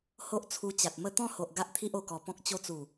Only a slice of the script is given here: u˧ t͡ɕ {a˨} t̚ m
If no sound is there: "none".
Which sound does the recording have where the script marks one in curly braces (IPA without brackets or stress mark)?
a˨